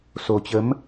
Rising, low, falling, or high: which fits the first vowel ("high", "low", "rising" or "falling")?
low